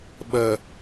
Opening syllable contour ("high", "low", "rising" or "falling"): low